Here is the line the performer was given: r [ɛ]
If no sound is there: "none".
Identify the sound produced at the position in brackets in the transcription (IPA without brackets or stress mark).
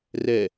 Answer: ɛ